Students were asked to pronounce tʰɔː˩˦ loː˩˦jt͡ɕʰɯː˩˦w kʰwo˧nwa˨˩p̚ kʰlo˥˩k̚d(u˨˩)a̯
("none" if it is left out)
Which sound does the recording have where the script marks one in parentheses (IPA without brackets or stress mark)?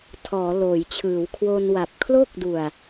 u˨˩